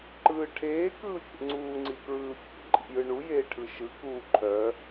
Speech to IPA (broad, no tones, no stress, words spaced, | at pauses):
ǃɯːʈʰeː kɯːfʲḛŋ͡ǀuː ŋ͡ǀikɹɯːfʲḛ ǃʼḭjɯɳu jeːʈʰɯʃɯ kuːǃʰœ